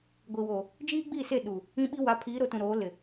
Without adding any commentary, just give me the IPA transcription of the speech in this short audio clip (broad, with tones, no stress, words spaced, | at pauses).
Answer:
ɡʷi˨woː˨ | d͡ʒiː˦ɡ͡biː˦˨se˦˨ ɗu˨ | ĩ˦ɓi˦ wa˨˦pʰiː˨˦ɾo˨tũ˨ ɾoː˨˦lɪ˨